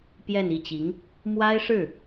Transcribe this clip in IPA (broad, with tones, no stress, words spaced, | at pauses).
pjɛ˥˧ni˥˩t͡ɕi˧˥ŋ | mwa˥ɪ̯ʂɻ̩˥˩